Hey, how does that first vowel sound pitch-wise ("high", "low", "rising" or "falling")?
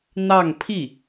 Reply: falling